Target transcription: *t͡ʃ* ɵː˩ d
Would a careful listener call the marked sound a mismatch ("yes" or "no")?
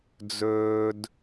yes